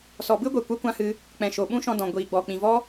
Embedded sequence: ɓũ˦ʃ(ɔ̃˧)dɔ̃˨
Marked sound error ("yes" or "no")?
no